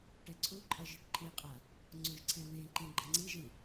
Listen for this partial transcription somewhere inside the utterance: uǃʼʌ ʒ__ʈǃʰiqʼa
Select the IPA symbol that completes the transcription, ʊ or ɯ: ɯ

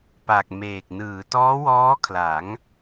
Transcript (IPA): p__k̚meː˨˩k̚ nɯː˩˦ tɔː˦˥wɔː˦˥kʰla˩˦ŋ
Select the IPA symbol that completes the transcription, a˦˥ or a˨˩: a˨˩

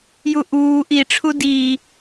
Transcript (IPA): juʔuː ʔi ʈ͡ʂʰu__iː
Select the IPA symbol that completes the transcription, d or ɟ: d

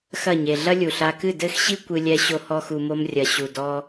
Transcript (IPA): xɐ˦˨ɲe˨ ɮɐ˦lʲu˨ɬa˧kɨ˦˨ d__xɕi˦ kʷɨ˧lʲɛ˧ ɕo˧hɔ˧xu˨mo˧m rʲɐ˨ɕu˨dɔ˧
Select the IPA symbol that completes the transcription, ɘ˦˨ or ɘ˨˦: ɘ˦˨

